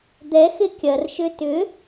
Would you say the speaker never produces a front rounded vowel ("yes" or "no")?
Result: no